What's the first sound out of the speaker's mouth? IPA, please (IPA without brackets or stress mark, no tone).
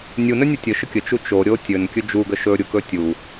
nʲ